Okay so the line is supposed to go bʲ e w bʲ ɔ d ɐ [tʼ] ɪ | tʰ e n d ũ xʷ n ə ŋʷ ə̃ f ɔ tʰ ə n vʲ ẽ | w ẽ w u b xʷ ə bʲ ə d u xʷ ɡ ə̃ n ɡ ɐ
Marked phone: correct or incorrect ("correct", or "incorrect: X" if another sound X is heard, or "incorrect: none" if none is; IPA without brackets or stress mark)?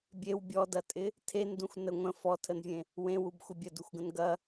correct